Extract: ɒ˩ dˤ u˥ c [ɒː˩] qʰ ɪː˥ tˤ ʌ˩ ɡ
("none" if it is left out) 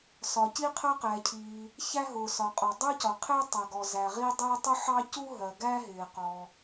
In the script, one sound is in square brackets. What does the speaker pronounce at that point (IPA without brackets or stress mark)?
ɒ˩